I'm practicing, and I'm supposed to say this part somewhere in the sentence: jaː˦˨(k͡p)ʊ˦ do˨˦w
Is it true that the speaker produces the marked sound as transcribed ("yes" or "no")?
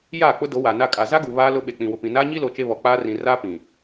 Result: yes